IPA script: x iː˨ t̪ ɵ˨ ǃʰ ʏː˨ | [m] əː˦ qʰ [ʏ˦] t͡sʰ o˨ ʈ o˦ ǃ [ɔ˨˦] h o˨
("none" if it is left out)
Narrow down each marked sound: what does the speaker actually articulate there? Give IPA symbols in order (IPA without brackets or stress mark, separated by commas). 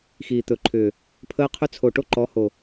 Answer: pʰ, ʏ˦, ɔ˨˦